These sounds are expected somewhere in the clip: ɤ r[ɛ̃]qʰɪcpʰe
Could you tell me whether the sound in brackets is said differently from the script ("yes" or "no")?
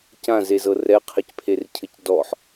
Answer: yes